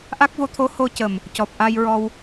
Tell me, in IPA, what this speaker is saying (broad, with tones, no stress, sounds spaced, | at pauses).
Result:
ʔ a˦˥ k̚ v o˧˥ t̪ʰ o˧˥ h o˧ c ə˨˩ m | c ɔ˨˩ p̚ ʔ a˧ j ɹ ɔ˧ w